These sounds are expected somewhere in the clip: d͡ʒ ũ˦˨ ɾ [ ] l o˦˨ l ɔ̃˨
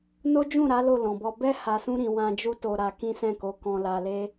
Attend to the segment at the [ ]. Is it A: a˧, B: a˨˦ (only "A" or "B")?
B